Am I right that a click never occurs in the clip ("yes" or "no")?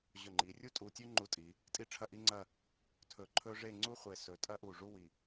no